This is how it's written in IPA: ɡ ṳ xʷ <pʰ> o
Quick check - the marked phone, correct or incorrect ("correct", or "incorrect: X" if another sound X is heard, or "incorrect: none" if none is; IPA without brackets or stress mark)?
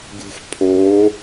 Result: correct